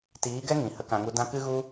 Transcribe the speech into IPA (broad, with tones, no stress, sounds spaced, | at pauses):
t iː˨˦ ɡ ɛ˦ ŋ ĩ˨ h ə˦ k ã˧ ŋ u˦ d ã˦ k ɨ˦ ɣ u˦